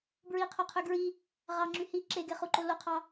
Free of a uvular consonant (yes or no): no